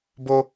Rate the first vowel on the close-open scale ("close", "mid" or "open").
mid